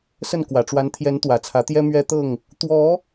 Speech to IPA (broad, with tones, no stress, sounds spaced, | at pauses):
s ə˥˨ n k w ä˨˩ ʈ͡ʂ w a˨˦ n t̪ʰ j ɛ˨˦ n t̪ w ä˨˩ t͡sʰ ä˨˦ t̪ j ɛ˦ m ɥ ɛ˦ t̪ ɤ˥˨ ŋ | t̪ w ɔ˨˦